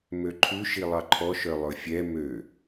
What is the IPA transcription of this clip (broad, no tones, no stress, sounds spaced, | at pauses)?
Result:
m ø ǃʰ ʉ ʃ i lˠ ɑ ǃʰ ɔ ʃ œ lˠ ɵ fʲ ɛ m ø